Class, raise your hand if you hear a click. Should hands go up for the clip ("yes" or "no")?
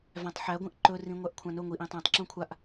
yes